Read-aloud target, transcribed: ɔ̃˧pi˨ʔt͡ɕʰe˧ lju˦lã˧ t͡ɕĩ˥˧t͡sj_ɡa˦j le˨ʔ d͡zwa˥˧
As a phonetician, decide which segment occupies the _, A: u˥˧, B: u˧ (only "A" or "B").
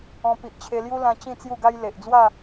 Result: A